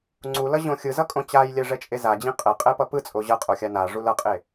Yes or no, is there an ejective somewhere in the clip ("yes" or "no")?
yes